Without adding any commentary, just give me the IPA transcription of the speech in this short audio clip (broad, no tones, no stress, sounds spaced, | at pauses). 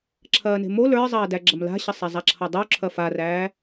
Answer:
ǁʰ ɐː n e̤ m o l ə˞ zˤ ɐː d æ ɡ͡ǁ ɐ m l a̤ ɕ ʌ sˤ ɛ zˤ a ǁʰ ʌ dˤ u ǁʰ ɐ f a r æː